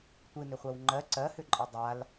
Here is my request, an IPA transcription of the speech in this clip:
tʷɨnʏχʷɜw ŋ͡ǃɜ ǀɜhʏǃʼi dˤal

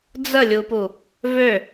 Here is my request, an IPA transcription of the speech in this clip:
d͡zəlʲupu | vø

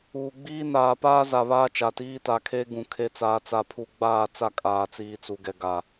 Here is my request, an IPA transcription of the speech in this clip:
uː˨ ɡ͡biː˦ naː˨paː˦za˨ βaː˦t͡ʃa˨tiː˦ta˨ kʰe˦ɡũ˨ kʰe˨t͡saː˨t͡sa˨pʰu˨ ɡ͡baː˦˨t͡sa˦˨ kʼaː˨t͡siː˨t͡su˨ɡɛ˨ ɡa˨

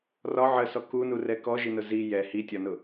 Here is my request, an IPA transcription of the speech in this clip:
rɒ ʕəsɔ kunurɛ kɔʒinʊ zi jɛ hitʲɒnʊ

